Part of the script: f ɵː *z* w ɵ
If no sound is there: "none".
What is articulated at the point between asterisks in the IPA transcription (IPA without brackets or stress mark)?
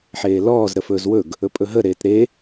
z